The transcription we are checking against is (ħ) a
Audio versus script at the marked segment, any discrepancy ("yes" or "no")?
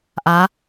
yes